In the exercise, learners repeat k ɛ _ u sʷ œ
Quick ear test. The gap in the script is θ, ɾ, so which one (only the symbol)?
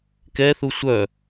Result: θ